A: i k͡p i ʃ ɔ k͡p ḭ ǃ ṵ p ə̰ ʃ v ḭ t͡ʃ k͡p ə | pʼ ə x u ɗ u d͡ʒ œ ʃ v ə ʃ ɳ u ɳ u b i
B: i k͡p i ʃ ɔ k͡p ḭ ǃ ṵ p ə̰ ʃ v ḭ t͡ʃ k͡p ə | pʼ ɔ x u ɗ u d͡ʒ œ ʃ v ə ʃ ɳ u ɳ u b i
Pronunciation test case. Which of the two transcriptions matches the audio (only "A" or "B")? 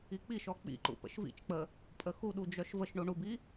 A